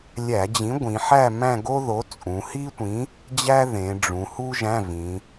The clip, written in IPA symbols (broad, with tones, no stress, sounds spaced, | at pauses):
lʲ æ˧˩˧ d͡ʑ ĩ˨˥ ɡʷ ĩ˩˧ ħ æ˥˧ m æ̃˥˧ ɡ o˥ ð o˨˥ t͡sʼ ũ˩˧ h i˥ tʷ ĩ˨˥ | d͡ʑ æ˥ ð ẽ˩˧ ɖ͡ʐ ũ˩˧ h u˥ ʒ æ̃˧˥˧ v ĩ˩˧